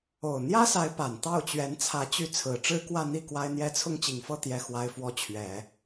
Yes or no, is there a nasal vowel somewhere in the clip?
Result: no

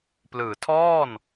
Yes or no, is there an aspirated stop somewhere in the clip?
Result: yes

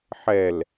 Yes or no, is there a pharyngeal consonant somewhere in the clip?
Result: yes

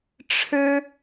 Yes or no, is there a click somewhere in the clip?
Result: no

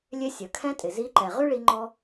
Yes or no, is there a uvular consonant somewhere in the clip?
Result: yes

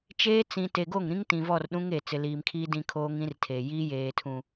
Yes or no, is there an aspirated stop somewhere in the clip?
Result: yes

